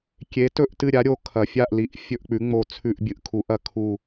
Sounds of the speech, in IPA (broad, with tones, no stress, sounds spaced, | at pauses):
kʲ e˨˥ t ɵ˦˨ ʔ t ɨ˦˨ ɾʲ a˨˥ ɾʲ o˨˥ kʰ ɐ˨˥ fʲ a˦˨ ʔ l i˨˥ ʔ fʲ ɵ˦˨ ʔ k͡p ʉ˨˥ ŋ͡m o˦˨ t͡sʰ ʉ˦˨ ʔ bʲ ɨ˨˥ ʔ kʰ u˨˥ ʔ ɐ˦˨ kʰ u˦˨